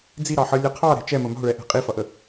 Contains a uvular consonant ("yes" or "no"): yes